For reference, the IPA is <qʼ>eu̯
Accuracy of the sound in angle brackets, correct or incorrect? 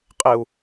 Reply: correct